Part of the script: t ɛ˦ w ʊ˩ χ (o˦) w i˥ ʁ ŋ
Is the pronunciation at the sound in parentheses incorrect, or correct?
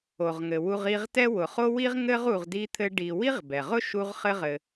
incorrect